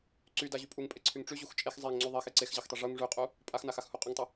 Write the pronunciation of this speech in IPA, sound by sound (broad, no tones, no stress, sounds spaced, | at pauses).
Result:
ǀ y d a ʑ y pʼ u ŋ pʼ e ǀʰ y ŋ ʈ͡ʂ y ʑ u x t͡ʃʼ e x zˤ e ŋ ŋ͡ǀ y ðˤ e x e ǀ e x ʑ a x tˤ e ʐ u ŋ ʐ y qʼ u | pʼ a x n a x a x h u qʼ y ŋ tˤ y